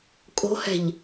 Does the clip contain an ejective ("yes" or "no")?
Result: yes